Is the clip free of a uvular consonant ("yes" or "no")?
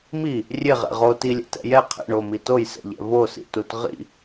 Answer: no